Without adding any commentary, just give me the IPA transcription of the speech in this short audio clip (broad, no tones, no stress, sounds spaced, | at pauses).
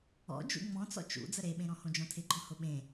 ɔ̰ d͡ʒ ṵ ŋ͡m ɔ̃ t͡s ɔ̰ t͡ʃ ṵ d͡z ə ɾ e ɓ ẽ ɾ ɔ̃ h õ d͡ʒ ɔ̃ tʰ ɪ ɡ͡ǃ ɔ̃ h ʊ ɓ ẽ